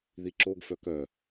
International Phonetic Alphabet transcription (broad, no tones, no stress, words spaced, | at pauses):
ðiǁoɡfœ kœ